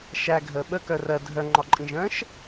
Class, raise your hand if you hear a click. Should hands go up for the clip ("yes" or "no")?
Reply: yes